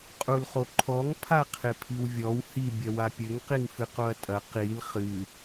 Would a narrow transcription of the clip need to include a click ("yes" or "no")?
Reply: yes